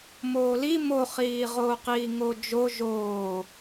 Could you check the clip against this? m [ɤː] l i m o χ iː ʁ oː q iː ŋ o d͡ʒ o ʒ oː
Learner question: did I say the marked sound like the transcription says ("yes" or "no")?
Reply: no